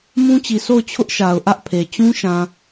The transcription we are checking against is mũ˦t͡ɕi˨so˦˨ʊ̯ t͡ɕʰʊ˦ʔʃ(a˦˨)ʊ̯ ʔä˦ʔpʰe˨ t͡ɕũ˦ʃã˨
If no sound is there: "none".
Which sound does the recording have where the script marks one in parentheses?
a˨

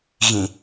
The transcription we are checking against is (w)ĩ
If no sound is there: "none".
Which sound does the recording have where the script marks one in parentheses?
ɣ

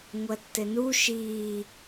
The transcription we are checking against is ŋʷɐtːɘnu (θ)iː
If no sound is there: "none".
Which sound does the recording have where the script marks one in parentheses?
ʃ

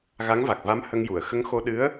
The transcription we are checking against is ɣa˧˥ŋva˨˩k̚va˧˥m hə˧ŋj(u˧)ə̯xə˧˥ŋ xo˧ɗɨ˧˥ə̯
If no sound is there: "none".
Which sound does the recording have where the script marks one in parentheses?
u˨˩˨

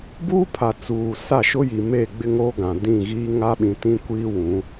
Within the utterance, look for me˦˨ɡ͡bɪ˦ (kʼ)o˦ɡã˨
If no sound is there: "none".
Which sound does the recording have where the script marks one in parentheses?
ŋ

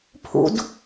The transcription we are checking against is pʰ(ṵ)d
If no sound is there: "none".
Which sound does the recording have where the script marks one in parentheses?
ṵ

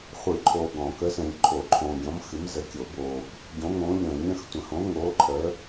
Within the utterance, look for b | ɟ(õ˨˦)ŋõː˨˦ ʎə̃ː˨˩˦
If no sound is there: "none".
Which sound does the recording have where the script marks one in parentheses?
õ˨˦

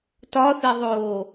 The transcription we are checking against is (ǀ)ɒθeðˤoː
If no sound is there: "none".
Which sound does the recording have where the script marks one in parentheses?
t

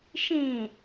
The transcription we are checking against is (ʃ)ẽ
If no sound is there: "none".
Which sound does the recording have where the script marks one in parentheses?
ʃ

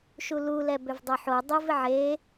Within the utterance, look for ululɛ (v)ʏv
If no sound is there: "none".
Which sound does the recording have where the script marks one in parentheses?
b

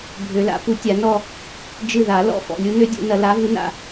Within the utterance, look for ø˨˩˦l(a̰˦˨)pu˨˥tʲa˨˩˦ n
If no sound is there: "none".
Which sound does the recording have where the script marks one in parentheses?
a̰˨˩˦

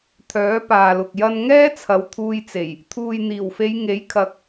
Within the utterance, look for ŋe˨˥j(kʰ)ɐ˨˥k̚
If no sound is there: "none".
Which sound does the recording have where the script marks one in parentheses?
kʰ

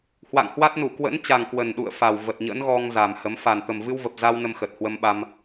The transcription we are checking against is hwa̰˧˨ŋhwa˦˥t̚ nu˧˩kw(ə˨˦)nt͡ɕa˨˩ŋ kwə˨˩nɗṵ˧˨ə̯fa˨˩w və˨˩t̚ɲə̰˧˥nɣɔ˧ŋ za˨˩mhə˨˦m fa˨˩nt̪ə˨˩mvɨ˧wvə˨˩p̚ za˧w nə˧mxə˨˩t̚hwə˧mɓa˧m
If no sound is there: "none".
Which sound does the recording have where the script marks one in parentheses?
ə̰˧˥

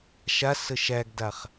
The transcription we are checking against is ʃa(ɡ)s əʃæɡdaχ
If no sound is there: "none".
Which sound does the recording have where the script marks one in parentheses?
none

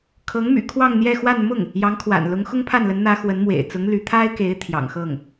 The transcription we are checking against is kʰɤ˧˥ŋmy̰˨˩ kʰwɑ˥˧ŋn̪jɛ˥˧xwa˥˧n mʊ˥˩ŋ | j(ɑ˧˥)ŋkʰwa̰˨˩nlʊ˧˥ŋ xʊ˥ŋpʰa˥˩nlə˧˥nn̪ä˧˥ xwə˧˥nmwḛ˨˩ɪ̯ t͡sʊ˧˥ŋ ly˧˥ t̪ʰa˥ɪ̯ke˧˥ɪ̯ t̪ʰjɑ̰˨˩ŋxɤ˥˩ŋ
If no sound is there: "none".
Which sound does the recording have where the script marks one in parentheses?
ɑ˧˥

